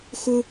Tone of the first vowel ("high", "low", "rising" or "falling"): high